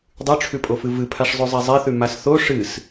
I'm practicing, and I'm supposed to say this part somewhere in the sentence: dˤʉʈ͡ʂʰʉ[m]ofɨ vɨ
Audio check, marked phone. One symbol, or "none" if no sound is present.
pʼ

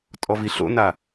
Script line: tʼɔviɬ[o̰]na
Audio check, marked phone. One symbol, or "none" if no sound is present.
o̰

